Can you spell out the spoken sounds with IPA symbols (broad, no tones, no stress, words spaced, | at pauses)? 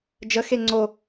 d͡ʒəxe ŋ͡ǀo